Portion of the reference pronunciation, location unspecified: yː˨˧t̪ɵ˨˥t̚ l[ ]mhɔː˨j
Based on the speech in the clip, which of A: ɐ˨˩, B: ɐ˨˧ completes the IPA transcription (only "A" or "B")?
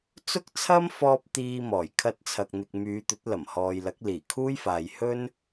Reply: A